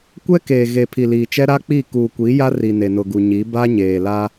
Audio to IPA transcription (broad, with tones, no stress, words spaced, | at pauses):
kʷɛ˦keː˨ɣe˨ pʰi˨liː˨t͡ʃɛ˦ ɾa˦k͡pi˦˨ kuː˨kʷi˨˦ja˦ ri˨ne˨nʊ˨ ɡu˨ɲi˨˦ ba˦ɲeː˨la˦